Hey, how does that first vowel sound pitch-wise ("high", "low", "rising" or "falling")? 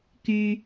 low